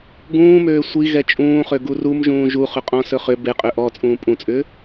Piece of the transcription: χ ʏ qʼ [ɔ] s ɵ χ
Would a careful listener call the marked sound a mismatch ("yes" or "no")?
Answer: yes